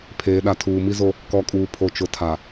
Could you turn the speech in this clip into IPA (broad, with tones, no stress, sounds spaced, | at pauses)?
pʰ eː˨ ɗ a˨ tʰ uː˨ m i˦ z o˦ | k ɔ˨ kʼ uː˨ pʰ o˨ t͡ʃ ʊ˨ tʰ a˨